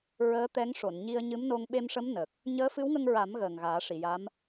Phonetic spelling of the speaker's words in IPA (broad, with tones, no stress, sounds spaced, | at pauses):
ɹ əː˧˥ t̪ ɛ˧˥ ŋ ʂ o˨˩˨ n ɲ i˧ ə̯ ɲ ɨ˧˥ m n o˧ ŋ ɓ e˧ m ʂ ə˧˥ m n ə˨˩ k̚ | ɲ əː˧˥ f ɨ˧˥ w ŋ ə˧ ŋ ɹ a˨˩˦ m ɣ əː˨˩ ŋ ɣ aː˨˩˦ ʂ i˨˩˨ j a˧˥ m